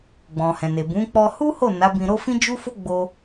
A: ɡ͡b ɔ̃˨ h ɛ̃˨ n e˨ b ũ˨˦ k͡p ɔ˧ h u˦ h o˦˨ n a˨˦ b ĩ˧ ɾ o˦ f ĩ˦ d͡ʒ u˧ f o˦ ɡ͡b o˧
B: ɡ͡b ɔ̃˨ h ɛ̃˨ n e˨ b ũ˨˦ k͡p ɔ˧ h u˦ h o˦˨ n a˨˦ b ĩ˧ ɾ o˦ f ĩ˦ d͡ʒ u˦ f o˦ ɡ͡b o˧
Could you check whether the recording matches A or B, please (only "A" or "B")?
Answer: B